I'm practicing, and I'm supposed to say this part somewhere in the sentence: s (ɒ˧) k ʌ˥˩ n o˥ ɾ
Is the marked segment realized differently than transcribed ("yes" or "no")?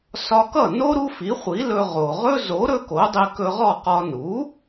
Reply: no